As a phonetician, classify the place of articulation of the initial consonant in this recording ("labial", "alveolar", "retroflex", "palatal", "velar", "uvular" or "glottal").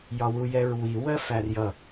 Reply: palatal